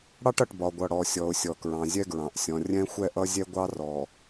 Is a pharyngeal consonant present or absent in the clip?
absent